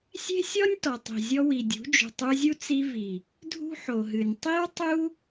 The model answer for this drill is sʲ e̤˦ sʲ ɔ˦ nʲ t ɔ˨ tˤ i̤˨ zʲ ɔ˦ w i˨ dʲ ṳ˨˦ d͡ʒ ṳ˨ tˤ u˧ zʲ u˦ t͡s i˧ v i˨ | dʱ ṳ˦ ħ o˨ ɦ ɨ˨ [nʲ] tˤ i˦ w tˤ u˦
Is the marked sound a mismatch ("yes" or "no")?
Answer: no